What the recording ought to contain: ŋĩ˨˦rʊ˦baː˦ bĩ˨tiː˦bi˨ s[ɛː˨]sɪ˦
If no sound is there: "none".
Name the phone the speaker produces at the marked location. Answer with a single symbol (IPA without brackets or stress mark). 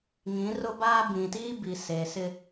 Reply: eː˨